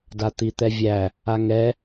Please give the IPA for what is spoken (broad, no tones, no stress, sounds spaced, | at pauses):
d a t̪ i t̪ ɛ vʲ æ | a ŋ ɛ